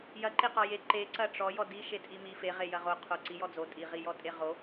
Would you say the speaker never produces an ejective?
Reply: no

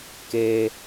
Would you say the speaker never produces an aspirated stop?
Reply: yes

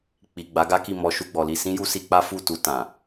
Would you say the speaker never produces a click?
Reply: yes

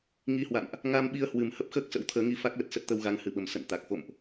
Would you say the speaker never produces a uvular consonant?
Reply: yes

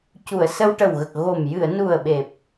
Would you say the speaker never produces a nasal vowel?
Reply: yes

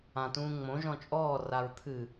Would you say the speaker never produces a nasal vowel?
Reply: no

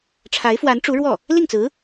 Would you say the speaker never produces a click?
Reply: yes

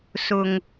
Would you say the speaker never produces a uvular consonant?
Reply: yes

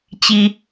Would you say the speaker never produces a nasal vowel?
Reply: yes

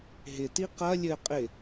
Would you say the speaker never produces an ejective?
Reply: no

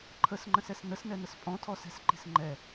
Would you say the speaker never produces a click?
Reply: no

